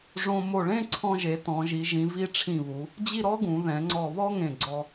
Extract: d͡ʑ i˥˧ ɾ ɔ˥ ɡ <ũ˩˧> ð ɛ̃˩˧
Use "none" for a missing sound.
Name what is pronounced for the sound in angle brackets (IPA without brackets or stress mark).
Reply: ũ˩˧